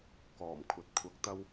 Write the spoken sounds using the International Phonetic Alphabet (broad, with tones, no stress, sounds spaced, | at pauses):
k ɔː˨˩ m kʷʰ ɐ˨ t̚ kʷʰ ɐ˧ k̚ t̪ ɐ˥ w